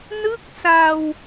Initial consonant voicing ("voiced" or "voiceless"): voiced